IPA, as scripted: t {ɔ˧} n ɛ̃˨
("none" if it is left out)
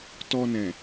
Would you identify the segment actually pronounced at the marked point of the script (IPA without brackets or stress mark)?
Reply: ɔ˧